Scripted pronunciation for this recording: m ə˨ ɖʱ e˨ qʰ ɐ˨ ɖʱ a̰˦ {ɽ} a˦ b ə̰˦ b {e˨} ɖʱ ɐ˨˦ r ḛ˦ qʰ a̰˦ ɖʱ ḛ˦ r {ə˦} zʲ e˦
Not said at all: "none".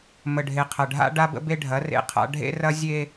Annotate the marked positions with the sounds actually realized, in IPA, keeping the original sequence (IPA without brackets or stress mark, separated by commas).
ɖ, e˦, ɐ˦